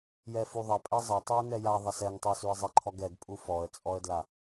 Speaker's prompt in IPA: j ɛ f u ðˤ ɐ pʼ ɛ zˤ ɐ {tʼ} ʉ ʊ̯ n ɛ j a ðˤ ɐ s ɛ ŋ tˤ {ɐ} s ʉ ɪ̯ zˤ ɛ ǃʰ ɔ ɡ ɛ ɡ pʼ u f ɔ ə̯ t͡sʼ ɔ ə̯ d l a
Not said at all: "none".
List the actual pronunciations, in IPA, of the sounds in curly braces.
tˤ, ə˞

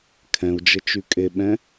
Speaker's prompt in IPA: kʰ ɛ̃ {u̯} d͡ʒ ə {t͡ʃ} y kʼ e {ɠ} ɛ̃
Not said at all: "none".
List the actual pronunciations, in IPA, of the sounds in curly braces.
u̯, t͡ʃ, ɓ

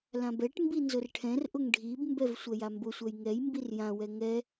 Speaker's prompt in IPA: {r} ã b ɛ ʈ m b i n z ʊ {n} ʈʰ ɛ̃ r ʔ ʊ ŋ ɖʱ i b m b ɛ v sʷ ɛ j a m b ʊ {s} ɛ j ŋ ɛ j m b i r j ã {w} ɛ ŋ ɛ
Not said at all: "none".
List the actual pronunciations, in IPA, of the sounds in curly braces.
l, r, sʷ, w

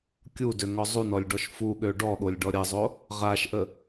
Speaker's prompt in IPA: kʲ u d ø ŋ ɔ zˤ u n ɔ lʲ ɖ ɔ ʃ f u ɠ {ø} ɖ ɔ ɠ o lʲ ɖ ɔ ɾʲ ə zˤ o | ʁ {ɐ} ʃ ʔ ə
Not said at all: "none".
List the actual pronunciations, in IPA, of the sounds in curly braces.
ø, a

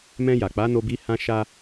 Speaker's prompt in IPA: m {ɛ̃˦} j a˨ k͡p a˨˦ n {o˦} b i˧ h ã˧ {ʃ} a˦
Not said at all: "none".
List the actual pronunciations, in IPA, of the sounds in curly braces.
ɛ̃˧, o˧, ʃ

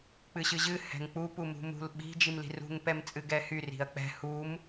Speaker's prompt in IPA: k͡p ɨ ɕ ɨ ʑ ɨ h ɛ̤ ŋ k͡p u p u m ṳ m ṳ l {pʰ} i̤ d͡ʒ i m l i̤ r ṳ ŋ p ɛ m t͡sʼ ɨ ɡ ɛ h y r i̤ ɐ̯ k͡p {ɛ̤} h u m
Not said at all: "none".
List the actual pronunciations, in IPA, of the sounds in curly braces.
ɓ, ɛ̤

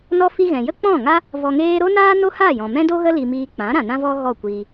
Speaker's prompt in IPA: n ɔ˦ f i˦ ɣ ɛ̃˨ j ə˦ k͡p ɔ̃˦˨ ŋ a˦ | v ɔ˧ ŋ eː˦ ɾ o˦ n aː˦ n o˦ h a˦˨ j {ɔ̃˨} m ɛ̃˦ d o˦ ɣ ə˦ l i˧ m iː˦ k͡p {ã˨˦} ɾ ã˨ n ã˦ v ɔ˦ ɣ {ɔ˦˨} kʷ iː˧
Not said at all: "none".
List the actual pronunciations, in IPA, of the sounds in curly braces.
ɔ̃˨, ã˨˦, ɔ˦˨

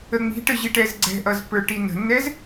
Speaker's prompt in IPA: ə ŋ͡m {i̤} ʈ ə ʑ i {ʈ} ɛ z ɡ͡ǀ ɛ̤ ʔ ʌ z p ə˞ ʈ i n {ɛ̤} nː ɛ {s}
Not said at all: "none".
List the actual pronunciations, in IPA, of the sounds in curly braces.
i̤, ʈ, ə̤, z

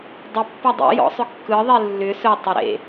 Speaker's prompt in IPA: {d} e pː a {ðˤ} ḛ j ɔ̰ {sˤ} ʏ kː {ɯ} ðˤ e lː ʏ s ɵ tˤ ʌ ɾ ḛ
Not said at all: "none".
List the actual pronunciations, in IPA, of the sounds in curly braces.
dˤ, dˤ, sˤ, ɯ

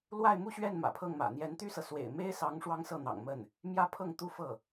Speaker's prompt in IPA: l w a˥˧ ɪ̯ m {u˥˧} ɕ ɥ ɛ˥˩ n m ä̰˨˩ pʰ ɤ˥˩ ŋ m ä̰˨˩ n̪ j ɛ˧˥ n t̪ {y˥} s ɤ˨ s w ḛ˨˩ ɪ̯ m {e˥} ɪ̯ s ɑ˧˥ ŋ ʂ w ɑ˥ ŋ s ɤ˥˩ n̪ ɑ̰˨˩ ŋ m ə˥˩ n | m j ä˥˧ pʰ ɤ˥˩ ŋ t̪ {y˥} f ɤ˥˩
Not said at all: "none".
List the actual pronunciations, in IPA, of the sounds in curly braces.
u˥˧, y˥, e˥, u˥

